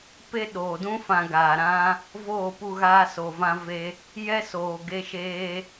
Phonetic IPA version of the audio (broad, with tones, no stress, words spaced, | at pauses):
pe˦ɗoː˨dũ˦ fã˧ɡaː˨ ɾã˦ | voː˦˨pu˧ɣaː˧ so˨vã˧ve˧ | jɛ˦soː˨ɡe˧ʃeː˧